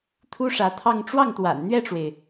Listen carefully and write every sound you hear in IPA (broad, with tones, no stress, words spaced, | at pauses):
t̪ʰu˥ʂä˧˥t̪ʰɑ˥˧ŋ ʈ͡ʂwɑ˥˩ŋt̪wa̰˨˩n n̪ɥɛ˥˩ʈ͡ʂwe˩ɪ̯